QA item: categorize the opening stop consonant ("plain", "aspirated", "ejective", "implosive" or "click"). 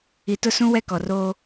plain